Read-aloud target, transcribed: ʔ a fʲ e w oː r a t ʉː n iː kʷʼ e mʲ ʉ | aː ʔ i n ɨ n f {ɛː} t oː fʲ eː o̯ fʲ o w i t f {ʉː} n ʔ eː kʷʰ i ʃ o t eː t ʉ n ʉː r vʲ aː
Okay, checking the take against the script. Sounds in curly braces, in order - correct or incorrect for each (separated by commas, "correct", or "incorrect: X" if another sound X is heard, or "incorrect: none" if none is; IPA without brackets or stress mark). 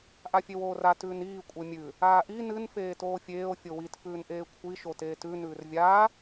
incorrect: eː, correct